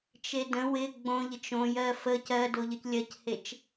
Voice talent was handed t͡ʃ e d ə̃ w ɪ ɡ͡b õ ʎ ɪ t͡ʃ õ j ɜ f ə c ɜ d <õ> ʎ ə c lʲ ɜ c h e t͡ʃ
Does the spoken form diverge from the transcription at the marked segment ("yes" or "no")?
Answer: yes